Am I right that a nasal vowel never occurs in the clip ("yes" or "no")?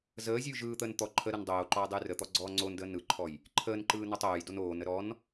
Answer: yes